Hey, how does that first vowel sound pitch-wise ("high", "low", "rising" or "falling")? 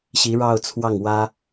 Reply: rising